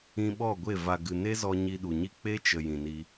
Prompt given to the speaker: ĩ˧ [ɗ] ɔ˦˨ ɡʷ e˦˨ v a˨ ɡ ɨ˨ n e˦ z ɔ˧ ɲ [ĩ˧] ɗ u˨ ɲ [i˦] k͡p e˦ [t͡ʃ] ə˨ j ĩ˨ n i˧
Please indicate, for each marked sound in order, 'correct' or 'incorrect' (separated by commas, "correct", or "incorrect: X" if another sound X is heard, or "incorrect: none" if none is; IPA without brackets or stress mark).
incorrect: ɓ, incorrect: i˧, correct, correct